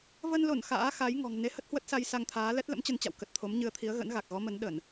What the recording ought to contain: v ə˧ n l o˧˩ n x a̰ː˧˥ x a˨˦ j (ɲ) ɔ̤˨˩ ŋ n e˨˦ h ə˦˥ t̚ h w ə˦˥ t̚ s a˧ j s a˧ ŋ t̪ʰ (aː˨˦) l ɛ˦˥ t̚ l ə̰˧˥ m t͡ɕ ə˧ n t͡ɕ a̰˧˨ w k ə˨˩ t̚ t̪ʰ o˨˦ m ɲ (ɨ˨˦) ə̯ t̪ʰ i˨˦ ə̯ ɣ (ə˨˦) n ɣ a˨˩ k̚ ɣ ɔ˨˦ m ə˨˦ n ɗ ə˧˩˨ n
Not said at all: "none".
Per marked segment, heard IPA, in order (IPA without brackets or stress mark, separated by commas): ŋ, aː˨˦, ɨ˨˦, ə̰˧˥